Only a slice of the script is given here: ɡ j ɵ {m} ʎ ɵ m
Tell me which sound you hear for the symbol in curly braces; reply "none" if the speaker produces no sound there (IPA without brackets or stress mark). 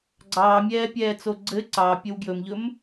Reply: m